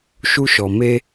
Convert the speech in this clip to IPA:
ʃu˦ʃɔ˨ me˦

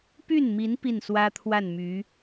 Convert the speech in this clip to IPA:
py˥˩nmi˧˥n pi˥˩nswä˥t̪ʰwa˥˩nmy˧˥

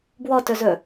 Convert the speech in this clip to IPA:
bwɔtɵzɵ

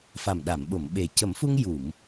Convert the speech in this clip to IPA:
fa˨˩mɗa˨˩˨mɓo˨˩˨m ɓe˨˩ cə˨˩˦mfu˧ŋ ju˨˩˨m

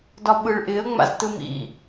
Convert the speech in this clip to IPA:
dɒɓɯɭʔɪə̯ ŋ͡ma̰ztɯmḭ

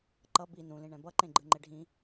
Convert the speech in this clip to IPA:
ǃʌ bi nũlĩɳɛ̃ bʌǃẽ ɡ͡ǃɯŋ͡ǃeɖʱĩ

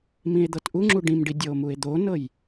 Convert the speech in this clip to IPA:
mĩe̯d̪ɤtʔuŋ͡ǁu ɖĩmɖi dʲɤo̯mue̯d̪onɤj

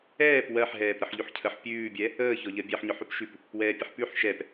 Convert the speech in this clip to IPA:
ɛːp wɜħɦɛːp ɾəħʎʉħcʰəħ pʲʉːbʲɛ | əːçɔʎɜ bʲɛħɲɔħ ʉpʃʉp | wɛːpʲəħpʉħ ʃɛp

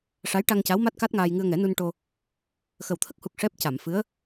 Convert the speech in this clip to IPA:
ʂa˧˥jʈa˧ŋca˧˥wma˦˥t̚ ka˦˥t̚ŋaː˧j ŋɨ˧ə̯ŋɛ˨˩˦nu˧n ʈo˧ | xə˨˩wt̪ʰə˦˥k̚hu˨˩k̚ ʂɛ˦˥p̚ ca˨˩˨mfɨ˧˥ə̯

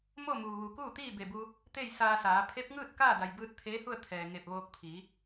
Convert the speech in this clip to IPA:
mo˥˨muː˩ʋu˩ kuː˥˨t̪iː˥˨be˧˩ bu˧ | t̪e˥˨jsaː˧saː˩˧ pʰe˧˥p̚ŋɯː˥˨t̚ kaː˥˨da˩jbɯː˧t̚ t̪ʰeː˧˥hu˥˨ə̯ t̪ʰɛː˩ŋe˧˩p̚ ʋoː˧k̚pʰiː˩˧

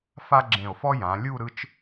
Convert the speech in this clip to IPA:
fa˥ɡ͡ǁẽ˧˩o̯fɔ˥ jã˩˧lʲu˥˧ ɾɯ˥t͡ʃ

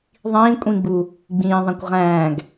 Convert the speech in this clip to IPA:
ðˤĩː kʷʼĩɡ͡bu | ɡ͡bĩːðˤæ̃kʷ ʁæ̃ːɡ

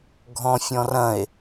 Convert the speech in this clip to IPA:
ɡʱɔ̃fʲɔ̃rɐ̃e̯

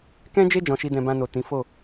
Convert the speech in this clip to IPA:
kɛ̃˦d͡ʒe˦ d͡ʒɔ̃˧ʃi˦dɛ̃˧ bã˧no˨ tĩ˨˦ fo˦˨

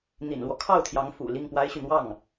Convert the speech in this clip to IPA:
n̪ḭ˨˩nlwɔ˦ kʰɑ˥˩ʊ̯t̪ʰjɑ˧˥ŋ fṵ˨˩ li˥˩ŋpwa˥ɪ̯ɕy˨ n̪wɑ˥˩ŋ

